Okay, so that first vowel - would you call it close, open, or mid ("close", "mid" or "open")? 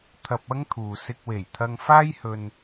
open